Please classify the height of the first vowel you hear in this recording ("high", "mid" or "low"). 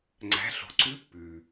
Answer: low